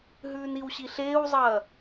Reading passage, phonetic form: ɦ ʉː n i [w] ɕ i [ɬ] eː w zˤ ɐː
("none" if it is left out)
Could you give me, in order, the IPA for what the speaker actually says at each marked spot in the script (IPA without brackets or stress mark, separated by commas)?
w, ɬ